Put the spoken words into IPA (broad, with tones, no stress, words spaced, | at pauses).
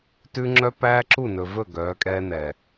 tʉ˦ ŋ͡ǁœ˦pæː˦ǁu˦˨nɵ˨ vɵ˦˨ ɡœː˨˦kʼɛː˦nɛ˨